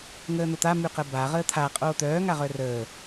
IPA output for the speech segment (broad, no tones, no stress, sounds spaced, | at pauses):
ŋ əː n̪ o t̪ a m y q ə b a ʁ əː t̪ʰ a qʼ oː t̪ œː ŋ a ʁ œ r əː